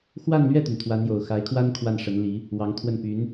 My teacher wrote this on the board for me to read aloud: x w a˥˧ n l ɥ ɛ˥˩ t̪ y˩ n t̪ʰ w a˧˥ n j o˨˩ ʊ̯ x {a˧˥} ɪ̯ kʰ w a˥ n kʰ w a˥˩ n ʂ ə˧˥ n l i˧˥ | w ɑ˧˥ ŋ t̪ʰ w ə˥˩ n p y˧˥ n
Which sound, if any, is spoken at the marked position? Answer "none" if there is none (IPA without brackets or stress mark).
a˧˥